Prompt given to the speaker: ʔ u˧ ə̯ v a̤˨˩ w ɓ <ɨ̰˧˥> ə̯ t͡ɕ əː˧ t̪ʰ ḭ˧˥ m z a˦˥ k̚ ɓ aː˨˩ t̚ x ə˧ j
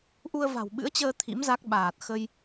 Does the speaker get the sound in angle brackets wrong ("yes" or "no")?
no